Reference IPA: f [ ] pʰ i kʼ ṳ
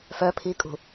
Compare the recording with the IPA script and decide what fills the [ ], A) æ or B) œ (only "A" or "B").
B